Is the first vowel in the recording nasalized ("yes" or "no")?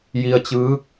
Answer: no